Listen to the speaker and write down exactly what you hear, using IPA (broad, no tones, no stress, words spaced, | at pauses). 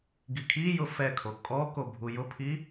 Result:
ɡikʰijʊ fɛkʰo kʼɔko bʱujʊpʰi